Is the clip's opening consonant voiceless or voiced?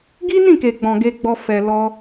voiced